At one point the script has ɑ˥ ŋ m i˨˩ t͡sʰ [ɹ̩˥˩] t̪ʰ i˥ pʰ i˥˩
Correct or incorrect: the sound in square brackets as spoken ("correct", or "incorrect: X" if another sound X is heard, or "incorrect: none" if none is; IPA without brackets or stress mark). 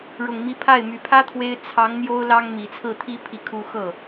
correct